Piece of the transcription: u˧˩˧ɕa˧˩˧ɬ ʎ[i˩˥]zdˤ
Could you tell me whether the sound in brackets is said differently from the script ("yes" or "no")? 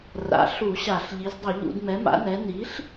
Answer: no